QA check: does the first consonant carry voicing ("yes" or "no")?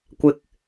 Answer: no